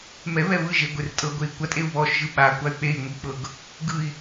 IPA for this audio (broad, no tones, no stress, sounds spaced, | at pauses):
m ɛ β ɛ β ɯ ʒ e ɡʷ e r tʼ ɤ ɡʷ e i̯ kʷ a tʼ e u̯ β ɔ ʃ ʒ ɯ ɓ a kʷ a y̯ k͡p e i̯ ŋʷ i k͡p ɤ ɡ | ɡ ɯ i̯